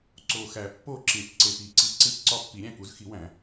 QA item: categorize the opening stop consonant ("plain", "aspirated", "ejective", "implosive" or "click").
click